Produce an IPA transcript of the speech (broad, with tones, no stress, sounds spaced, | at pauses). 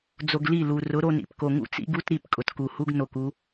d͡z o˧ ɡ l i˦˨ l u˨ r ʊ˨˦ ɾ o˧ n ḭ˨ p k o˨ ŋ ṵ˦ t͡s ḭ˦ ɡ u˦ t ɾ i˦˨ p kʼ ʊ˨ t k u˨ h u˦ ɡ n o˨ k u˦